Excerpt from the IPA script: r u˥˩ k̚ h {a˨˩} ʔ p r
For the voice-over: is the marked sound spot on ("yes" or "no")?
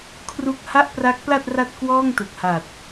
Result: no